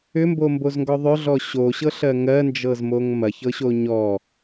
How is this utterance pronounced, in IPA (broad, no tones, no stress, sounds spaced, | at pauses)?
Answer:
ʏ m b o m b o z ŋ ɡ ɔ ðˤ ʏ ɮ ɔ ɕ o ɕ ɤ ɬ ɜ ŋ ɜ n d͡ʒ ɤ z m o ŋ m ɐ ç ɤ ɕ o ɲ ɔ